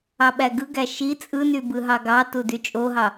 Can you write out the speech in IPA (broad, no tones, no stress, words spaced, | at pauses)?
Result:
ɑɓæɡɯɡæ ʃi t͡sʼɯny bɯɦɑɡɑtu dyt͡ʃʼoɦɑ